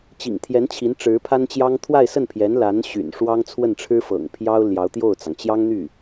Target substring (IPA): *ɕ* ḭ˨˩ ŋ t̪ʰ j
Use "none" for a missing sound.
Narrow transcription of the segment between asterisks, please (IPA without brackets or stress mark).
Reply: t͡ɕ